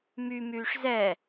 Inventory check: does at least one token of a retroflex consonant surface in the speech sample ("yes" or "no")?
yes